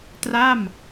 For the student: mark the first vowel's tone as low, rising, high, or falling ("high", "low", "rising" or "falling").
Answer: falling